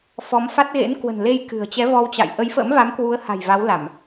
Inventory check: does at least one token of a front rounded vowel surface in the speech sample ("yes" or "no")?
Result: no